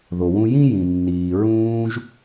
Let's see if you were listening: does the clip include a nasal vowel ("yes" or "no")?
yes